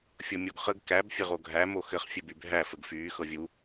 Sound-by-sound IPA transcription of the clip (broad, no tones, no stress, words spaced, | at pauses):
fʲɤmʲoɡχəɡ kæb fʲɘʁoɡʱæ moxɘχ fʲɘbybʱæ fəɡfyː xɤvʲu